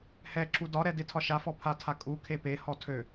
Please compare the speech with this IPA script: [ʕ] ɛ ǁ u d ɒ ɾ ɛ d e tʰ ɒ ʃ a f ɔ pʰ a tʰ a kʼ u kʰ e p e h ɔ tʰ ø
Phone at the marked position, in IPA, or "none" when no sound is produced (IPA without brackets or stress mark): h